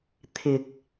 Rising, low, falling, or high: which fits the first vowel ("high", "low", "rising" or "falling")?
low